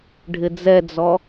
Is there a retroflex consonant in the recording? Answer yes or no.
yes